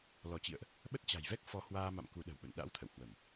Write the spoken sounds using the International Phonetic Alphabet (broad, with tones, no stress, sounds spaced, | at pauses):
l ɔ˧˩ t͡ɕ ḭ˧˨ ə̯ ʔ | ɓ ə˦˥ t̚ t͡ɕ a̤˨˩ j v ɛ˦˥ k̚ f ɔ˨˦ h w aː˧ m a̰˧˨ m k u˨˦ ɗ ə̤˨˩ w ɓ ə̰˧˨ n ɗ a̰˧˥ w t̪ʰ ə̰˧˨ w h w ə˧˩˨ m